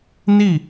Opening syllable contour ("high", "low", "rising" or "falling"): falling